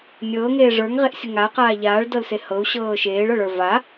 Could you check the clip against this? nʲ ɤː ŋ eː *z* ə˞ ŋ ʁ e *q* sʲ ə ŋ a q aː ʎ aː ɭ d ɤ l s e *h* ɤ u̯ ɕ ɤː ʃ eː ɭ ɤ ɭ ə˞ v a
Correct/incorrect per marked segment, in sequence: incorrect, incorrect, correct

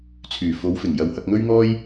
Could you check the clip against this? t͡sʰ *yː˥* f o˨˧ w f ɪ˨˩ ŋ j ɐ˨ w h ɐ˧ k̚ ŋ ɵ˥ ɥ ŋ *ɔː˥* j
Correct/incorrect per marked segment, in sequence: incorrect, correct

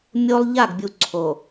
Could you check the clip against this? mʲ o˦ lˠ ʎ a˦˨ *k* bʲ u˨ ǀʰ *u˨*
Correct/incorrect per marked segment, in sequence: incorrect, incorrect

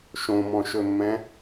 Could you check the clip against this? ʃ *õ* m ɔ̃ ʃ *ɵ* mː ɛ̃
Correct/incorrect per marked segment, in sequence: correct, correct

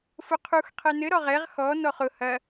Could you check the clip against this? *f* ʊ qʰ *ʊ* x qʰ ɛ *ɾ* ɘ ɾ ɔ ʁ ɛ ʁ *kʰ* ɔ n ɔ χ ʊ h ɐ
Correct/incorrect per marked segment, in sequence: correct, incorrect, incorrect, incorrect

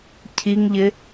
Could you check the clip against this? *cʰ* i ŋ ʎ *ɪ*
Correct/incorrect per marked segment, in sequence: correct, correct

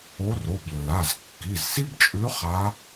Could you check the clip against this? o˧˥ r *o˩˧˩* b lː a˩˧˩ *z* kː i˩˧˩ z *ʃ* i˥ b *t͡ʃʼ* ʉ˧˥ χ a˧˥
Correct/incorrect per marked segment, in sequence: correct, correct, incorrect, correct

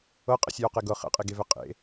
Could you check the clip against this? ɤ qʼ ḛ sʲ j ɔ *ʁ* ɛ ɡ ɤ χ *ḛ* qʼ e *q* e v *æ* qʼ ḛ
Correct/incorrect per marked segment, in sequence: incorrect, incorrect, incorrect, incorrect

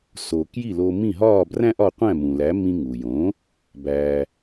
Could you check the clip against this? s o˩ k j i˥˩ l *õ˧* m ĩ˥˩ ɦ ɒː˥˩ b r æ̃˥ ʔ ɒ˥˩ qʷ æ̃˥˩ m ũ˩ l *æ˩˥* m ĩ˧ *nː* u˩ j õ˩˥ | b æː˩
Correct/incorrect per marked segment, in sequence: incorrect, correct, incorrect

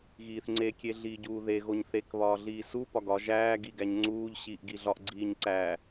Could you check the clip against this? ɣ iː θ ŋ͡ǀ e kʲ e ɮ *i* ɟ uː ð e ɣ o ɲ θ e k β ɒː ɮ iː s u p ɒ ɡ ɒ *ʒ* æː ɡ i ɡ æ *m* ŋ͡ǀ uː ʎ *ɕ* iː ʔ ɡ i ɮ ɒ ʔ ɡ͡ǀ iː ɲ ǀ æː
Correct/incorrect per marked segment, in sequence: incorrect, correct, incorrect, correct

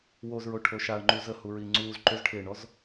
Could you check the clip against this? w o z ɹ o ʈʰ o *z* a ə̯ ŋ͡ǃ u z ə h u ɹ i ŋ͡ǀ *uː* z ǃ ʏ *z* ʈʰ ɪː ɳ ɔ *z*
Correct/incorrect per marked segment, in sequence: incorrect, correct, correct, correct

